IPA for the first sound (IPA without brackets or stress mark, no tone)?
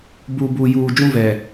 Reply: b